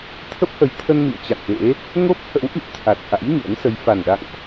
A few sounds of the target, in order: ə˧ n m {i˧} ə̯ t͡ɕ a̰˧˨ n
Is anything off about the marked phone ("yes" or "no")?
yes